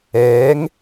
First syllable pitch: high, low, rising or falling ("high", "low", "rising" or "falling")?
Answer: rising